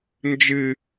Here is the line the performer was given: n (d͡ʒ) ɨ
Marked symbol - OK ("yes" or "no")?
yes